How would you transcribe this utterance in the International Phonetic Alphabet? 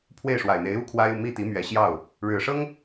pʰ w e˥˩ ɪ̯ ʂ w a˨˩ ɪ̯ n̪ e˧˥ ɪ̯ u˥ kʰ w a˥ ɪ̯ u˨ m i˥˩ t̪ i˧˥ m ɥ ɛ˨˩ ɕ j ɑ˥˩ ʊ̯ | ɻ ɻ̩˨˩ ʂ ɤ˥ ŋ

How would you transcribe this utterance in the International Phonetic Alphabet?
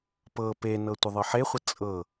p ɤ p e n ɤ tʷ ə ðˤ ɤ ħ e χʷ ə t͡sʼ ɤ

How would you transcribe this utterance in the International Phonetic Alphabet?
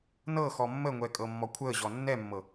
n ɤ x ɔ mː ə ŋʷ ɛ kʼ ɤ mː ɔ kʷʰ əː ʑ ɔ nː ɛ mː ɤ

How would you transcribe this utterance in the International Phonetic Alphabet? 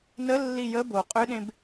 n ə lː i j ə b o qʼ ʏ ɗ ẽ b

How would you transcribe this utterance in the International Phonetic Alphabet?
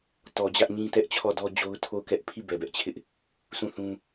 t ɔ˨ d͡ʑ ä˦ ʔ ɲ ĩ˦ t ɛ˦ ʔ t͡ɕʰ ɔ˦˨ d ɔ˦ d͡ʑ o˦ ʊ̯ tʰ o˦˨ ʊ̯ k ɛ˦ ʔ pʰ i˦˨ b ɛ˨ b ɛ˦ ʔ t͡ɕʰ ɪ˦ ʔ | s ũ˦˨ θ ũ˦

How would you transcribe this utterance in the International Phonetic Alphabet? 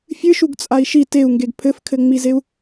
fʲ ɨ ʃ u ɡ t͡sʼ a i̯ ʃ i t e u̯ ŋ ɡ e ɡ pʰ ɘ f kʰ ɘ ŋ͡m i z e u̯

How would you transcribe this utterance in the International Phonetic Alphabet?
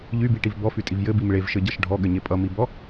ʎ y b i ʈ i v b ɔ f y tʼ i v j ɘ b i m ɭ e v ʃ ɘ ɟ ʌ ʃ ɖʱ ɔ ɠ ɘ ɲ e pʼ ʌ m i b ɔ

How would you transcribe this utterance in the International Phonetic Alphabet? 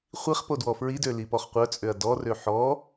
χʷ i χ p o d w ɔ f ɹ i d ø l i p ɔ χ qʷ œ t͡sʼ ø ɐ̯ d ɔ r ø ħ ɔ

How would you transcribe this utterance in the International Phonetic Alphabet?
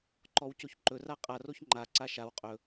ǃ ɔ w c o ç ǃ ɵ r a qʼ a r o ç ŋ͡ǃ a ǀ a ʃ a w qʼ ɵ

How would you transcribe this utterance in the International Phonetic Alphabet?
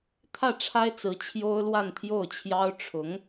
t̪ʰ ä˥˩ ʈ͡ʂʰ a˥ ɪ̯ t͡s ɹ̩˧˥ t͡ɕʰ j o˥ ʊ̯ l w a˥˧ n t̪ʰ j o˥˩ ʊ̯ t͡ɕʰ j ɑ˥ ʊ̯ ʈ͡ʂʰ ʊ˧˥ ŋ

